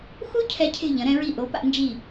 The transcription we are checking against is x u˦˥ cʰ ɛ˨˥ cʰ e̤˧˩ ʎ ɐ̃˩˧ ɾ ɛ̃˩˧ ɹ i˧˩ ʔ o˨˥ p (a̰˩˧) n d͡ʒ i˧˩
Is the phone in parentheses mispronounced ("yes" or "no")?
no